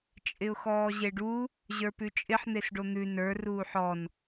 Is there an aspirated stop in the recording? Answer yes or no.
no